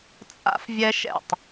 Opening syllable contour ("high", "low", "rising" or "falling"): high